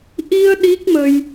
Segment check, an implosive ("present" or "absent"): present